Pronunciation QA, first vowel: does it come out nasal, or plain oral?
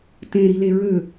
nasal